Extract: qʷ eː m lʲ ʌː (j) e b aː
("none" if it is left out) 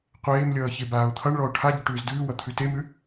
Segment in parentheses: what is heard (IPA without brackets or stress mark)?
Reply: ç